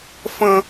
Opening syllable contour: high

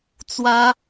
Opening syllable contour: high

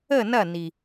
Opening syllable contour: falling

